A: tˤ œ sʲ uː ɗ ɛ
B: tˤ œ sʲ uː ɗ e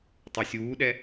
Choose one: A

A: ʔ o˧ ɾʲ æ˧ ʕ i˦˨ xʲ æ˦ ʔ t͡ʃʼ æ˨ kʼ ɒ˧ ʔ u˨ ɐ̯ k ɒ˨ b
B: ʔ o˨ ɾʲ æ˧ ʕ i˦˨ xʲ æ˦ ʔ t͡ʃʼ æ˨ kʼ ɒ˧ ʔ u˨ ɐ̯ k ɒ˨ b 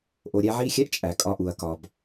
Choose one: B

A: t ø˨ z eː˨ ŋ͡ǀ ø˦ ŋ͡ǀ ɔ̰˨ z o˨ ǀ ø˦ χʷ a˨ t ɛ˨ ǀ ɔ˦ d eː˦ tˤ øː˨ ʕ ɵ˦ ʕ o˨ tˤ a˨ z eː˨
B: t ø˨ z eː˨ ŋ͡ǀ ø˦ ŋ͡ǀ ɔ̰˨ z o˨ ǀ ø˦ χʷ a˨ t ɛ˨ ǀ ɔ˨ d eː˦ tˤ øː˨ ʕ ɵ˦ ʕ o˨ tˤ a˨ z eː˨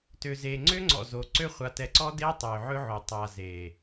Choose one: A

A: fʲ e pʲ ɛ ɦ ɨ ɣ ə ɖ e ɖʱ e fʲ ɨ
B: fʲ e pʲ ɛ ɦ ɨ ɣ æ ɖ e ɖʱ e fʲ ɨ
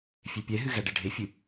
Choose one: B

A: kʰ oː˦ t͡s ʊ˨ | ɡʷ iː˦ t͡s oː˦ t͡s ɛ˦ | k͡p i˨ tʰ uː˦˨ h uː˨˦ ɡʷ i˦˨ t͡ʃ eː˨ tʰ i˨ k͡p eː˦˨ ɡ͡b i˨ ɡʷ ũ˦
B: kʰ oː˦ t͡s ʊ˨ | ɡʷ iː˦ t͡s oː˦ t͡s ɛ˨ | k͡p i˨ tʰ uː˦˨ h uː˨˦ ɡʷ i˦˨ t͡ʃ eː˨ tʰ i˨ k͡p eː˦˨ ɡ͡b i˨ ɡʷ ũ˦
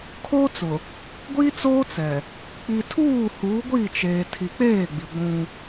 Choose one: B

